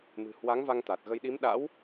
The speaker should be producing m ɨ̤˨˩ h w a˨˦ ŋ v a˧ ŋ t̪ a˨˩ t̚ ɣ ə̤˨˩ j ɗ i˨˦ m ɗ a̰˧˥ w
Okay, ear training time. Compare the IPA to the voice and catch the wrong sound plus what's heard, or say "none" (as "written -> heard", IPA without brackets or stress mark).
ə̤˨˩ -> ə˧